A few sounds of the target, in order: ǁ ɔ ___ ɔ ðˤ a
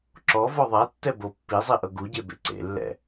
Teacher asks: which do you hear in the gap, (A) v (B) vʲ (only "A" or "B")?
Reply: A